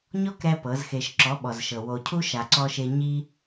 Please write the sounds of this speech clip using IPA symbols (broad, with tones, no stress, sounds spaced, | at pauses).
ɲ ɔ˦ k ɾ ɛ˧ p ɤ˨˦ z x e˧ ʃ ǁ ɔ˨˦ ɓ ɔ˨ z ʃ ɤ˨ w o˨ cʰ u˦ ʃ a˧ ǀ ɔ˦ ʃ e˦ ɲ i˦